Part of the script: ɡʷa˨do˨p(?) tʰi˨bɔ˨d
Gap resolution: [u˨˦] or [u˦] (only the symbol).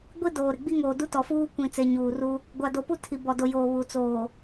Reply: u˦